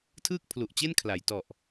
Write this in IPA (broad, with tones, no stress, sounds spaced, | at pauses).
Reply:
tʰ ɯː˥˩ k̚ pʰ l u˨˩ ʔ t͡ɕ e˥˩ n kʰ l a˩˦ j t ɔ˨˩ ʔ